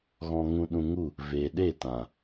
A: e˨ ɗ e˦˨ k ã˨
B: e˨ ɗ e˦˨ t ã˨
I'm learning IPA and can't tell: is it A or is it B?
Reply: B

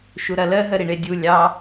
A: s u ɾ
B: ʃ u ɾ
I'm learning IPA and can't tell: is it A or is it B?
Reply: B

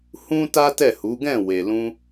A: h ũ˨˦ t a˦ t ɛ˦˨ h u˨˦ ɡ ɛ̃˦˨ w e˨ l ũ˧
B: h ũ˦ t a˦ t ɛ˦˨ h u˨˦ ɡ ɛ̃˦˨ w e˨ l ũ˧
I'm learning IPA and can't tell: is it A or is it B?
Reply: B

